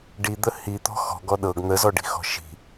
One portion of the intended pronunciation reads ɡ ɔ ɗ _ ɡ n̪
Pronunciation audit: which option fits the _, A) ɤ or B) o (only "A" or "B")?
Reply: A